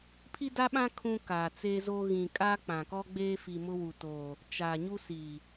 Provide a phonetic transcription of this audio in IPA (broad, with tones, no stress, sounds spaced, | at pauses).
pʰ i˦ d a˦ ɓ ã˦ kʰ ũ˦ k aː˨ t͡s e˦ z oː˦ ɣ ĩ˨ kʼ a˦ k͡p ã˨ k ɔ˦ ɡ͡b eː˦ f i˨ m ʊ˦ w u˨ t oː˨ | t͡ʃ aː˨ ɲ u˦ s i˨